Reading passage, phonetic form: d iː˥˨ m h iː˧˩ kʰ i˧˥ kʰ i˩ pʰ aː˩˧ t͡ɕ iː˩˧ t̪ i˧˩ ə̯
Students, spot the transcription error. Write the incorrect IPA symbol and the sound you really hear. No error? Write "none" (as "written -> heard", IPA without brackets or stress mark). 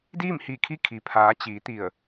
none